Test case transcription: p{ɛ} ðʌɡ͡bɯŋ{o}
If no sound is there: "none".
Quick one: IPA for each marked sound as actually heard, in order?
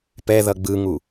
ɛ, u

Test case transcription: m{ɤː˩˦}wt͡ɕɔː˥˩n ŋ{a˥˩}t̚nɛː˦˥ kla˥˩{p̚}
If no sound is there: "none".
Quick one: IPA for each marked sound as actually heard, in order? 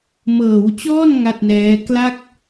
ɤː˩˦, a˥˩, k̚

